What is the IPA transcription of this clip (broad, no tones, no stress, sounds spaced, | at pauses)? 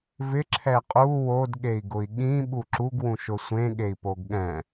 v ɪ ǁʰ ɛ qʼ u w o d ɠ e i̯ ɡ ʊ i̯ ɠ ĩ ɓ u ǁ u ɡ w ũ ʃ ʊ sʷ ẽ ɠ e i̯ p o ɡ ɠ ɛ̃